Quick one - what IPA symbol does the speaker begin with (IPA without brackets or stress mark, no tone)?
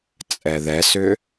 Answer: t͡sʼ